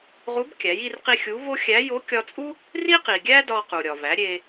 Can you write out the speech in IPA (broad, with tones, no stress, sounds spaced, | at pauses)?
ʁ u˧˥ b kʲ æ˩˧ j i˧ r q i˧ xʲ u˧˥ v o˥ xʲ æ˧˥ j o˧˥ kʲ ɒ˧ t͡sʼ u˥ | r i˥ q i˩ ɡʲ æ˥ d ɒ˧ q u˩ ɾʲ ɒ˩ v æ˩˧ ɾʲ e˧